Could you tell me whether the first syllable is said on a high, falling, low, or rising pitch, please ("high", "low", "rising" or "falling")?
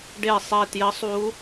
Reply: falling